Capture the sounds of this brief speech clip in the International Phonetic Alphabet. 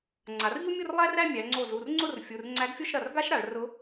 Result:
ŋ͡ǀa˩˧rʎu˥mʲo˥˧r lˠæ˥ræ˥˧ mʲæ˩˧ŋ͡ǀo˧˩zu˩˧˩r ŋ͡ǀʊ˥˧rfʲu˩˧˩r ŋ͡ǀæ˧˥ɡfʲo˥˧ʃ ɾɐ˩˧˩r ɡa˥ʃɾa˩˧ɭ rʊ˧˥

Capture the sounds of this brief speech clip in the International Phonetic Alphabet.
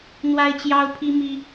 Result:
n̪wa˦ɪ̯t͡ɕjɑ˦ʊ̯pʰi˦ mi˦

